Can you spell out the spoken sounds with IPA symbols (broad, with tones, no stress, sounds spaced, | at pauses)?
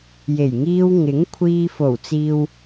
j e˨˩ j ŋ iː˧ w ŋ ɪ˨˥ ŋ kʷʰ iː˧ f o˨˩ w t͡s iː˨ w